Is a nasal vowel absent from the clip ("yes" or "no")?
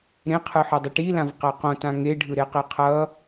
no